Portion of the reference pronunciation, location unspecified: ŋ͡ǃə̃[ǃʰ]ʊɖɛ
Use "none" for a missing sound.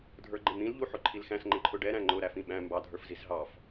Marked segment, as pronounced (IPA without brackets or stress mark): ǃʰ